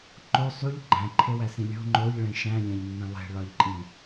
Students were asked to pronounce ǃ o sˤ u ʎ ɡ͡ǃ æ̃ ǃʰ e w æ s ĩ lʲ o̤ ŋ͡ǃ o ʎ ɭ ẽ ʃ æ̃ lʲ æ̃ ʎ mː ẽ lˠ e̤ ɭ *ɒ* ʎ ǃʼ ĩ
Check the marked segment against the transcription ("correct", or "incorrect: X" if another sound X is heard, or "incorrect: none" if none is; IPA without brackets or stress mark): correct